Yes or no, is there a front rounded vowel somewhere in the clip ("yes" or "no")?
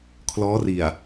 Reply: no